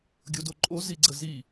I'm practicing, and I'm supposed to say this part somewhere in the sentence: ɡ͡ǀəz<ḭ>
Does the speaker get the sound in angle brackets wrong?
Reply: yes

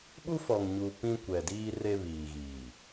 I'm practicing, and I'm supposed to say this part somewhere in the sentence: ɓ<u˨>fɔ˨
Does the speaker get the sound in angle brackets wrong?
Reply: yes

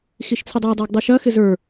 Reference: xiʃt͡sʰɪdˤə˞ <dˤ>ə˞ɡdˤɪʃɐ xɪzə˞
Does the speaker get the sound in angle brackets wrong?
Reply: no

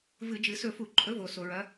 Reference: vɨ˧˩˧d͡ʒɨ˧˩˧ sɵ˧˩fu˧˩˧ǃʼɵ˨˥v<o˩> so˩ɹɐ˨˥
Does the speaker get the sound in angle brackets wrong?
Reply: no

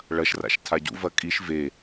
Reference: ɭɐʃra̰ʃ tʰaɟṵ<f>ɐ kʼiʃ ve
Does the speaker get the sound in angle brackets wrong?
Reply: yes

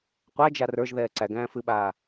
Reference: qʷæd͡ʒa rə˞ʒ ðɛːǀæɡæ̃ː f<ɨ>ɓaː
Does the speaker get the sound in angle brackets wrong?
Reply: no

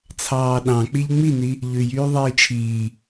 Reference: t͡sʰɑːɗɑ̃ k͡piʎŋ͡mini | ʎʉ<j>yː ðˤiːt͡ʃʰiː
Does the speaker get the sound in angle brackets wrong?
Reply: no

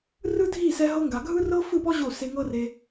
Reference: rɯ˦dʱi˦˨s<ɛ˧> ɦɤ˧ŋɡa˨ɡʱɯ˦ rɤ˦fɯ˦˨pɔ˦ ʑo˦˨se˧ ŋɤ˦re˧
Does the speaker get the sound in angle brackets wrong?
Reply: no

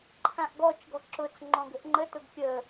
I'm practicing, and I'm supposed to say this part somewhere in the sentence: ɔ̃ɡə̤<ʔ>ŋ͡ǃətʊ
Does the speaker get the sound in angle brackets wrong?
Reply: no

